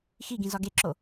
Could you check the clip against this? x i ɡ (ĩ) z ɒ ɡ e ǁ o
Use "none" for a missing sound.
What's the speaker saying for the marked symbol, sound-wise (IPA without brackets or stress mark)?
ĩ